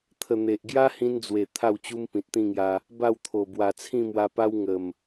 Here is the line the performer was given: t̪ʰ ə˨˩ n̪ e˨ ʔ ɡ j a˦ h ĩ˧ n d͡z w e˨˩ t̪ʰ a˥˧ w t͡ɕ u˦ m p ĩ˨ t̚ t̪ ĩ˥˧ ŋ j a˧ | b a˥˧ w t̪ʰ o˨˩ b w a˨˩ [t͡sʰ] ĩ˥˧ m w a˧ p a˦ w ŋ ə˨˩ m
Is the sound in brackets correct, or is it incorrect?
correct